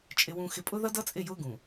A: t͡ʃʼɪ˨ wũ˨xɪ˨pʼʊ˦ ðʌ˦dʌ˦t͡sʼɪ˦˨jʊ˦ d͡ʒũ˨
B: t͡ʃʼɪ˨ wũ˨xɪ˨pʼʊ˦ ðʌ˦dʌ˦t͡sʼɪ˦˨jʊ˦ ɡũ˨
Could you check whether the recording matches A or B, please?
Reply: B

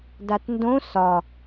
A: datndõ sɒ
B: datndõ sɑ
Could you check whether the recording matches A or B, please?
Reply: A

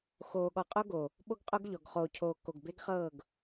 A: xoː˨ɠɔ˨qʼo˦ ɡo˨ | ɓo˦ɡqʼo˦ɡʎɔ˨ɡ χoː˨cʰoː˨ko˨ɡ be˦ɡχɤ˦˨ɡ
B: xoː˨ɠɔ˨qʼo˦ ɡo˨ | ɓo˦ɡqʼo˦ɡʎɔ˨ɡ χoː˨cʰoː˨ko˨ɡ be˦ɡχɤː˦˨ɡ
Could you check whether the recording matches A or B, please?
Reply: B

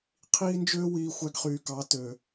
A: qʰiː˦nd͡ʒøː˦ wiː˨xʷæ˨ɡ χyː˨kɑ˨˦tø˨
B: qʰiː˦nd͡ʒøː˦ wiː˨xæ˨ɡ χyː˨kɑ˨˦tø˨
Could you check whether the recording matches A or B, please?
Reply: A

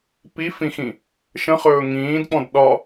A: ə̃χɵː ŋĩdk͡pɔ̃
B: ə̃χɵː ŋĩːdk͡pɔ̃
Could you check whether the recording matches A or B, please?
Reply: B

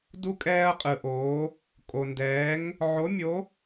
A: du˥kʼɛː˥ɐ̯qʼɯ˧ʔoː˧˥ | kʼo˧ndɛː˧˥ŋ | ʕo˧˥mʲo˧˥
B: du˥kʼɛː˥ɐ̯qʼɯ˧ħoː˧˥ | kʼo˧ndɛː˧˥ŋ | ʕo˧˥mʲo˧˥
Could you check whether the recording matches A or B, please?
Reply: A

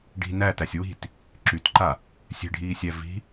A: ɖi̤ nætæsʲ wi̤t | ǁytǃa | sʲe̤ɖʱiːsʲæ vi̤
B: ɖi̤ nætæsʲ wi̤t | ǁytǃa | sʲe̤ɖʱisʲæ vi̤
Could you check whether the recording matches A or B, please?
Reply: A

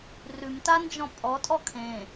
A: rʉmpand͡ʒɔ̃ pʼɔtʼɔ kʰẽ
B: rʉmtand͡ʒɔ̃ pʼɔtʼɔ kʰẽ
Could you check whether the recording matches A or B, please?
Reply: B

